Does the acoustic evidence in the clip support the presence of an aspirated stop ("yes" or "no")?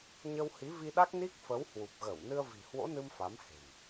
no